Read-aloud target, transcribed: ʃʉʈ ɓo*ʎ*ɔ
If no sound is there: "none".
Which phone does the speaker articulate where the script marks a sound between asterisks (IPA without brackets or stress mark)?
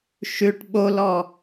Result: l